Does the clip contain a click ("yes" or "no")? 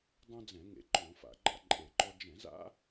yes